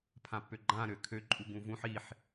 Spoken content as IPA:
pʰ ã pː ø ɡ͡ǃ ã ɾ ø kʰ ø ǃʼ u ɡ ũ v ũ ħ i ħ

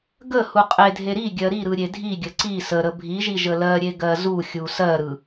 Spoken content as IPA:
ɡ ə h u qʼ e dʱ e ɾ i ɡʲ ɜ ɾ i ɾ ɯ ɾʲ e dʱ i ɡʲ ə ǀ i s ə ɾ ə bʱ i ʒ i ʒ ə l ɜ ɾʲ e ɡ ɜ z u xʲ u s ɜ ɾ ɯ

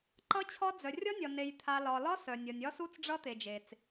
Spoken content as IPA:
ǃ ʌ˦˥ t͡ɕʰ ɒ˦˥ d͡z œ˨ rʲ ɒ˦˥ nʲ ɒ˨ n e˨ j t̪ʰ a˨ l ɒ˨ l ɒ˦˥ s œ˨ nʲ ʌ˨ nʲ ɒ˦˥ s u˦˥ t͡s ɖ͡ʐ ʌ˦˥ t̪ e˨ d͡ʒ e˨ t͡s

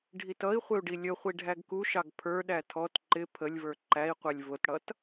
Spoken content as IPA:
ɖʱ i t ʌ i̯ χʷ ɪ u̯ ɖ i lʲ ə χʷ i ɖʱ æ ɡ k u ʃ ɑ ɡ pʰ ə˞ ɗ æ tʰ ɔ t ǃ ɪ pʰ ə lʲ v ə˞ ǃ æ i̯ qʷ ɛ lʲ v ʊ t ɽ ʌ t

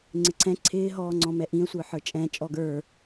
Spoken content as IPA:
ŋ͡ǀ ɪ ǀʰ ɛ̃ ǀʰ ɪː ɦ ɔː ŋ͡ǀ ɔ̃ m ɛ ʔ ĩ ə̯ sʷ ə˞ ħ ə˞ t͡ʃʼ ɛ̃ t͡ʃʼ ɔ ɡ ə˞

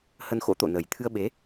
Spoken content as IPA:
h ə˧ n x o̰˧˥ t̪ o̰˧˨ n ə˨˩ j t̪ʰ ɨ˧ ə̯ ɓ e˨˦

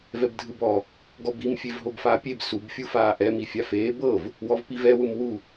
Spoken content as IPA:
v ɛ b dʱ ɯ b ɔ | ɡ ɔ b i m fʲ e v ɦ o b f aː pʲ e b s u b fʲ u f aː ʔ ɛ m i fʲ a f eː b ɤ v | w ɔ v p i v ɛ w ɯ m w u

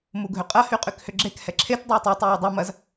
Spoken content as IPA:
m u ɡʱ ʏ qʼ ɐ h y qʼ y k h ʏ ɡ͡ǁ e k h ɛ ǁʰ e t dˤ u j tˤ y tˤ y j ʏ dˤ ɐ m ɐ z

